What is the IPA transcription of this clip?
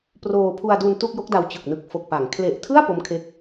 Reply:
p r oː˧ pʰ u˧ a̯ d u˧ n t u˥˩ k̚ j o˦˥ k̚ d a˧ w t͡ɕ ɯ˨˩ k̚ n ɯ˨˩ k̚ f o˨˩ k̚ p a˩˦ ŋ kʰ l e˨˩ ʔ tʰ ɯ˥˩ a̯ p o˦˥ m kʰ e˦˥ k̚

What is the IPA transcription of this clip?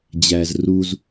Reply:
d͡ʑ æ z r u z

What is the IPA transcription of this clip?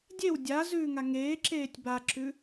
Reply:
dʲ e w dʲ a z ʉː ŋ a ŋ eː ǁ eː tʲ b a ǁ ʉ

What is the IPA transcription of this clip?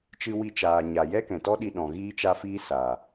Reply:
t͡ʃ ɨ˧ w i˧ t͡ʃ aː˨ ɲ a˨ j ɛ˦ k ɛ̃˨ t ɔ˦ ɗ i˧ ɗ ɔ̃˨ ɣ iː˦ t͡ʃ a˦ f iː˦ s a˨

